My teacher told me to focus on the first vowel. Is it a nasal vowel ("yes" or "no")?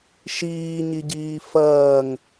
no